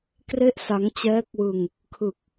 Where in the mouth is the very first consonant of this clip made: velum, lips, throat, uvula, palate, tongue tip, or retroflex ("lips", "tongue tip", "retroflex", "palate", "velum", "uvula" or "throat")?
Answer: velum